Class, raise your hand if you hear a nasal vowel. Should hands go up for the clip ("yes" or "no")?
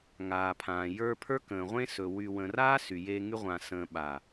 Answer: yes